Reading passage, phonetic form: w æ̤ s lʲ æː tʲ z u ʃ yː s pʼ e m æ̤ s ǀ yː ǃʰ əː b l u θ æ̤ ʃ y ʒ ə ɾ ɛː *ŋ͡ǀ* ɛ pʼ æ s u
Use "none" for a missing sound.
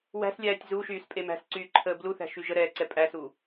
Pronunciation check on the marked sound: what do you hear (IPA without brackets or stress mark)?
ǀ